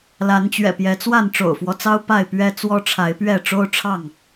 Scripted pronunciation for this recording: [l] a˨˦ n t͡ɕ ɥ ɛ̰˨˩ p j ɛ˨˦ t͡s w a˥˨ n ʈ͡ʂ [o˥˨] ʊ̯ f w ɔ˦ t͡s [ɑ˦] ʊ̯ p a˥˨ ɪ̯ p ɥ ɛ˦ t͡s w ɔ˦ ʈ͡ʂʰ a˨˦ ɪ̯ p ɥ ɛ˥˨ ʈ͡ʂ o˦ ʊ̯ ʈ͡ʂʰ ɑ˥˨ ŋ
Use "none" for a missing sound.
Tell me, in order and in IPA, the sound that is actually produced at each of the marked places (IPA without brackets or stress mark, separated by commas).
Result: l, o̰˨˩, ɑ˦